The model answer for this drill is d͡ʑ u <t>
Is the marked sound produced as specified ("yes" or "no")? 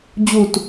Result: yes